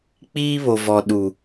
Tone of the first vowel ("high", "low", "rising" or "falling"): high